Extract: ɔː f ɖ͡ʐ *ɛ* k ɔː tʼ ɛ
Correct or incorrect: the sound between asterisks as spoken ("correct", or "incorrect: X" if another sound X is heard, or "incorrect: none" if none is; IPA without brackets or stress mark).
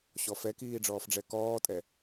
correct